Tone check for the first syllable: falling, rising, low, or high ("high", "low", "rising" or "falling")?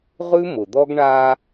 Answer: high